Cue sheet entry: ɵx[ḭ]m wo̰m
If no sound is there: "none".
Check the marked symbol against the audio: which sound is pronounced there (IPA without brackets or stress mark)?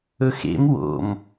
ḛ